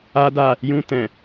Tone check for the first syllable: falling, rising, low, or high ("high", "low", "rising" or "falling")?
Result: high